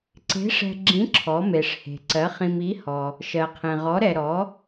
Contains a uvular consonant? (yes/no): yes